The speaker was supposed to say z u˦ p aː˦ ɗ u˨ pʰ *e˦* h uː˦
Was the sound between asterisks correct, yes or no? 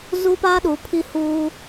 no